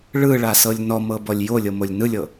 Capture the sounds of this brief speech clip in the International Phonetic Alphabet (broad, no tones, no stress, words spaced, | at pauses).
ɭɯɭasɤlʲ nɔmɤbɔlʲ jolʲɤmolʲ nɯlʲɤ